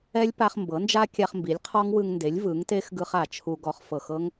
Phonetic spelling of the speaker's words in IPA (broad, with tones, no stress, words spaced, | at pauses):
ɛ˦˥lʲpa˧χ mbɤ˩˥nd͡ʒa˦˥ kʲa˧χmbi˩˥lʲqʰɔ˦˥ŋ wɯ˧ŋnde˩˥lʲ vɯ˩˥ŋte˦˥xɡɯ˧χ a˧˩t͡ʃʰu˧ ɡɔ˧χfɤ˧˩x ɤ˦˥ŋ